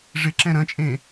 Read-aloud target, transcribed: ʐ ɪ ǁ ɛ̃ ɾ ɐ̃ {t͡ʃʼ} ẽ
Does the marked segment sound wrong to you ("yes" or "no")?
no